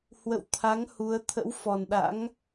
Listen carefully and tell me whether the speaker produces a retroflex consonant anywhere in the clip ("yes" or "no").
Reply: no